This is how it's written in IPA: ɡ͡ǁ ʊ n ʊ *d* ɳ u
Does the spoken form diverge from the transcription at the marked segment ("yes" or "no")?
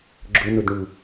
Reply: no